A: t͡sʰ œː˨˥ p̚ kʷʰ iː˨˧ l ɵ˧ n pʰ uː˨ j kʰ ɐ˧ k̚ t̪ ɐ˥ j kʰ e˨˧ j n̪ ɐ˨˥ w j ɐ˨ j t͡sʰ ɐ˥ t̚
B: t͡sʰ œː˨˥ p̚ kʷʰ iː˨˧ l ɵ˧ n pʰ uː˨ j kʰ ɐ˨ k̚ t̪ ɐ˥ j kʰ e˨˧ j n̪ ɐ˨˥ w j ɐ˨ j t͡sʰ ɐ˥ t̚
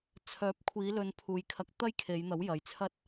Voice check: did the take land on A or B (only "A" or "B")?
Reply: A